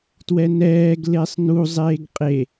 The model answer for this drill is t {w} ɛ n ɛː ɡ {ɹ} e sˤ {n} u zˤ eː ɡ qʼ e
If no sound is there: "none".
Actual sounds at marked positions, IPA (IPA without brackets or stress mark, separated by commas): w, l, n